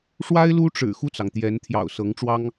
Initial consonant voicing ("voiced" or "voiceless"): voiceless